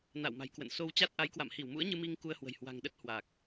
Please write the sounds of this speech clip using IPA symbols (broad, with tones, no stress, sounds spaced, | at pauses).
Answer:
n a̰˧˨ w m a̤˨˩ j k w ə̰˧˨ n s o˧ w t͡ɕ a˦˥ t̚ ʔ a˨˦ j k w a̰˧˨ m h i˧˩ w m ṵ˧˥ ə̯ ɲ ɨ˧ m i˧ ŋ k u˧ ə̯ h w ə̤˨˩ j h w a̤˨˩ ŋ ɗ ə˦˥ t̚ h w a˨˩ k̚